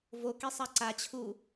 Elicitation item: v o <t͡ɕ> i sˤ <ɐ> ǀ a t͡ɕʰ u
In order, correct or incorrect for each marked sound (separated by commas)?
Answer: incorrect, incorrect